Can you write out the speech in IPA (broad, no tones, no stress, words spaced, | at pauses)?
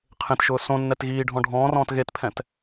qʰẽtʃʊː sõnːɛt ɣiːɖʱɔ̃ ɖʱɔ̃ːrɔ̃ːt ɣetpʰɛ̃t